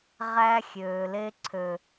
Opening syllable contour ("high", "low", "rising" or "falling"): high